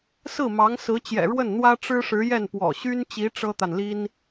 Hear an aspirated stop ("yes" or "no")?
no